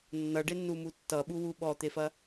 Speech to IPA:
nː ʌ ɖ e nː u m u tː ʌ ɓ u w u ɓ ɔ t̪ e f ɐ

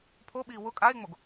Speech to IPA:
pʰ o ɓ iː w ʊ kʼ a e̯ ŋ͡m o ɡ

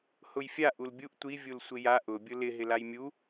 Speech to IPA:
h ʊ j fʲ a ʔ u l bʲ u ʔ tʷ i vʲ u l sʷ ɪ j a ʔ ʊ bʲ ʊ l ɪ ɦ ɪ l a j mʲ u

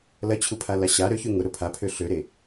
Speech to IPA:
l ɐ t͡ɕʰ u pʰ a l a ɕ a ɾ ø ç y ŋ ʊ ɾ ʊ pʰ a pʰ ø ɬ ø ɾ e

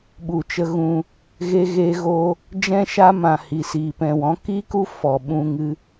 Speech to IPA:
ɓ u˨ t͡ʃ ə˧ ɣ ũ˧ | ɣ e˧ ɣ eː˧ ɣ oː˧ | d͡ʒ ɛ̃˦ ʃ a˦ m ã˨ h i˨ s iː˨ p ɛ̃˨ w ɔ̃˨˦ k i˦ k u˦ f ɔ˨ ɓ ũ˧ ŋ ɨ˧

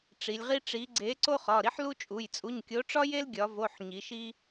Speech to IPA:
ʈ͡ʂ i˩˧ lʲ ʁ i˥ ʈ͡ʂ i˨˥ ɡ͡ǀ e˨˥ ǀ o˥ χ ɒ˩˧˩ ɾ i˥ ħ l u˥ t͡ʃʼ u˩˧˩ j t͡sʼ u˩˧˩ ɲ kʲ o˨˥ ʈ͡ʂ ɒ˥ j e˥ l ɡʲ ɒ˩˧ v o˩˧˩ ħ ɲ i˩˧ ʃ i˥

